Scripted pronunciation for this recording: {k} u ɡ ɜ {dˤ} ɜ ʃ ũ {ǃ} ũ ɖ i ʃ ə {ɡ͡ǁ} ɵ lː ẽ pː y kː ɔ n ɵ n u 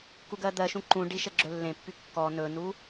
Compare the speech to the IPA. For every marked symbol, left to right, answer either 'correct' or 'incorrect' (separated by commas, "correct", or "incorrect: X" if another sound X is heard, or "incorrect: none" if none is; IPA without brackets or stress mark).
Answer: correct, incorrect: d̪, correct, correct